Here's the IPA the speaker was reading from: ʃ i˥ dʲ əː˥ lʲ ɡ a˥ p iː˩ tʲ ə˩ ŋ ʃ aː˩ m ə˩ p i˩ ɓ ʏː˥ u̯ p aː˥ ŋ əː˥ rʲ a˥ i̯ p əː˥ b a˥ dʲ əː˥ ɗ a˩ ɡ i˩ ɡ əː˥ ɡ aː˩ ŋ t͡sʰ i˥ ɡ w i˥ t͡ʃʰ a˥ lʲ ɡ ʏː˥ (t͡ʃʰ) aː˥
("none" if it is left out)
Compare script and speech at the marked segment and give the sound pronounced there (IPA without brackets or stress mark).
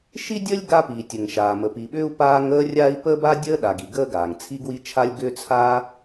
t͡sʰ